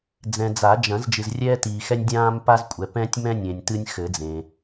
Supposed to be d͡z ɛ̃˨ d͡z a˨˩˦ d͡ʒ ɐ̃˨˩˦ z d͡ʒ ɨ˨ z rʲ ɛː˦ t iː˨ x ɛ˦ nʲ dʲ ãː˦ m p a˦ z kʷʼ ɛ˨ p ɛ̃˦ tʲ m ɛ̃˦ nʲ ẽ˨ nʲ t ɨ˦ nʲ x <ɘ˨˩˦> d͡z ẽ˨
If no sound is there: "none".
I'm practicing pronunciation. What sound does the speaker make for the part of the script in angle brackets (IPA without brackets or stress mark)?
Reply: ɘ˨˩˦